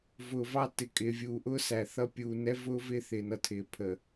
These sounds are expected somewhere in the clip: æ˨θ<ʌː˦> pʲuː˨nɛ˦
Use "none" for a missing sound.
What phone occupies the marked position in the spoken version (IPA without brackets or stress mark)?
ʌ˦